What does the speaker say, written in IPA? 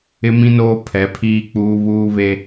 ɪ˦ m ĩ˦ n oː˦ pʰ ɛ˨˦ pʰ iː˦ k͡p uː˦ β uː˦ β e˦

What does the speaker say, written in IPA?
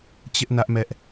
t͡ɕ ɪ˦ ʔ n ä˦ ʔ m ɛ˦ ʔ

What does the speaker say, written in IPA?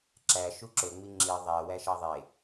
ǁ æ ʃ u ǁ ɵ ŋ͡m i ŋ͡ǁ i ðˤ æ w æ ʃ ɑ ðˤ e

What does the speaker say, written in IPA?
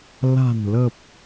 l a̤˨˩ n l ə˨˩ p̚

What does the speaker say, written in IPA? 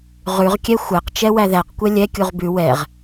ʁ ʉ ʁ kʲ ɛ xʷ æ q t͡ʃ ɛ w æ ð æ q kʷ ɛ lʲ ɛ kʲ u ʁ b ʉ w ɛ ʁ

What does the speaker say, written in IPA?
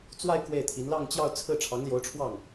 t͡s w a˥˧ ɪ̯ k w e˥˩ ɪ̯ t̪ʰ i˧˥ n l ɑ˥˧ ŋ t͡ɕ j ɑ˥˧ ʊ̯ t͡sʰ ɹ̩˥˩ ʈ͡ʂʰ ɑ˧˥ ŋ l j o˧˥ ʊ̯ ʈ͡ʂʰ w ɑ˥˩ ŋ

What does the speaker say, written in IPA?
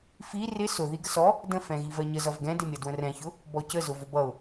f i r ɪ s ʊ ð i ɡ ə s ɔ | d ə̃ f ɛ̃ ɣ i v ɜ ɲ ə z ʌ v ɡ ɛ̃ d ɪ mʲ ʌ d w ə̃ r ɛ̃ ç ʊ | b ɔ c ə z ʊ v ʊ b ʌ ʊ̯

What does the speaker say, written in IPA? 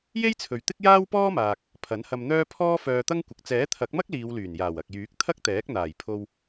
j e˥ j t͡sʰ ɵ˨ ɥ t̪ ɪ˥ k̚ j aː˥ w p ɔː˥ m aː˨ k̚ | pʰ ɐ˨˥ n h ɐ˧ m n̪ œː˥ pʰ ɔː˥ f œː˧ t̪ ɐ˥ ŋ kʷ ɪ˨ k̚ t͡s ɛː˨˥ t̪ʰ ɐ˨˥ k̚ m ɐ˥ k̚ l iː˨˧ w l yː˨˩ n j aː˨˩ w ɐ˨ k̚ j yː˨˥ k̚ t̪ʰ ɐ˥ k̚ t̪ ɛː˨˥ k̚ n̪ aː˨˩ j pʰ o˧ w

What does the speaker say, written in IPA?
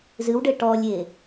z ɨ w ɖ ɘ ʈ ɔ lʲ e

